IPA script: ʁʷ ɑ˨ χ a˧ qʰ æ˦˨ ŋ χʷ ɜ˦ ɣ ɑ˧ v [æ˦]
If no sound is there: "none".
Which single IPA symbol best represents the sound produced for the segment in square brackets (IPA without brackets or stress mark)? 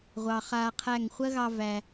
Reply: æ˨